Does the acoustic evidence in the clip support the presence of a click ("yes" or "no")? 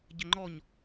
yes